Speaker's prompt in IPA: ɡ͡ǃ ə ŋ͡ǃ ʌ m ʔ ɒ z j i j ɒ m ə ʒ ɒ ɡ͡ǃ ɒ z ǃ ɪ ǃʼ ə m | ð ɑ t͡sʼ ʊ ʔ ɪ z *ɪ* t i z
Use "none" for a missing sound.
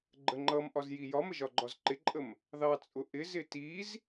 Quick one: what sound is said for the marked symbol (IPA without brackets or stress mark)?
ɪ